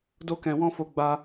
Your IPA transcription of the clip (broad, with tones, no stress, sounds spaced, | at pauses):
d o˦ k ɛ̃˧ w ɔ̃˦ f o˧ ɡ͡b a˧